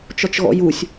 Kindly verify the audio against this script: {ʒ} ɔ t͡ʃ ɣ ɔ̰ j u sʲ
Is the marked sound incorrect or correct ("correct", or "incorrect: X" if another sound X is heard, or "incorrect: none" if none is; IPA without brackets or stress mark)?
incorrect: t͡ʃ